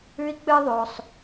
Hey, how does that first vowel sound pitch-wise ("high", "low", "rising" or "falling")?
high